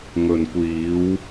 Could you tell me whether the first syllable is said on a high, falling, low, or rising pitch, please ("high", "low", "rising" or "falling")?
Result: low